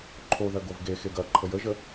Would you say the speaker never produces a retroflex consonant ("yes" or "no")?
yes